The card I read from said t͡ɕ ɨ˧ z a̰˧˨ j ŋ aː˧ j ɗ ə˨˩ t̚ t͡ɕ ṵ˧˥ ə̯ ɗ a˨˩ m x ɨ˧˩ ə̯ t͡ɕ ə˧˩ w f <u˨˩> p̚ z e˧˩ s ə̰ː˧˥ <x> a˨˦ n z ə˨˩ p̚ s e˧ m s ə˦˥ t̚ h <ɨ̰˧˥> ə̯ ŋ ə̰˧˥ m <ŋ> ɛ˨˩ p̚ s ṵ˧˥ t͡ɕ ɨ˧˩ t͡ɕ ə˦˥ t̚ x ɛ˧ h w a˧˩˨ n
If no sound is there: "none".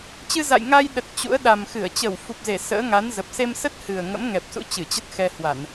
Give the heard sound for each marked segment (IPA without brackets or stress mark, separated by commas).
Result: u˨˩, ŋ, ɨ˨˩, ŋ